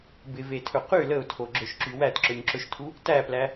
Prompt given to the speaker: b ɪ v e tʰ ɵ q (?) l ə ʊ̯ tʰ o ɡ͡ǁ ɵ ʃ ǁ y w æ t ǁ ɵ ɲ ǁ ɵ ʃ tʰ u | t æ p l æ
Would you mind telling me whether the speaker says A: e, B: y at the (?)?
B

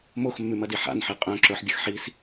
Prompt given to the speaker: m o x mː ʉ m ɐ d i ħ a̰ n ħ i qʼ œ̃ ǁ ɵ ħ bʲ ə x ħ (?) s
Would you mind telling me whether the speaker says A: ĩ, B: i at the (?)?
B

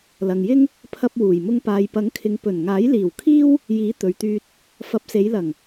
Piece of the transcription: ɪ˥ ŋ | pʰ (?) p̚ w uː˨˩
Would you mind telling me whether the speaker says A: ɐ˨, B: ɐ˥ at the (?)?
B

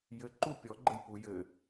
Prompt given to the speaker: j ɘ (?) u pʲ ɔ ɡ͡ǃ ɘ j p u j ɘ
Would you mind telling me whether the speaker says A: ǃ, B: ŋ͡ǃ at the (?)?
A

